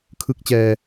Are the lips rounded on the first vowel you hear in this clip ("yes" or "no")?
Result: no